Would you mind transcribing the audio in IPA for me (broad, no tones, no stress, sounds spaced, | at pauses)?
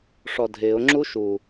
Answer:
ʂ ɔ dʱ ɪː ʊ̯ ŋ͡ǁ u ʃ u